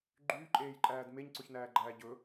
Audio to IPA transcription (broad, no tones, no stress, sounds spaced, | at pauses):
ɡ͡ǃ yː ǃʼ eː j ǃʼ æː d m e ɲ ǀ ɵ ç n æː ɡ͡ǃ æː ɟ ɵ